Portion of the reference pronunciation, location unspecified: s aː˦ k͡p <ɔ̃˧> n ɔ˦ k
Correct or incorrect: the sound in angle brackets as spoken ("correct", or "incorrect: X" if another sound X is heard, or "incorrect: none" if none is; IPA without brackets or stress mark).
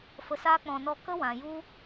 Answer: correct